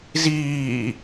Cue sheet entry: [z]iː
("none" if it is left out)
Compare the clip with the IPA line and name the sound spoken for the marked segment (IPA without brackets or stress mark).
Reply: z